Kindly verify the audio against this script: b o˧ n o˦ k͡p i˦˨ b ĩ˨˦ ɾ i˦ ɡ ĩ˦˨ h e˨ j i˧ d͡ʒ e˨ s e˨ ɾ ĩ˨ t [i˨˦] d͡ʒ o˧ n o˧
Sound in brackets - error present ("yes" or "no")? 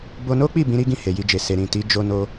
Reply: no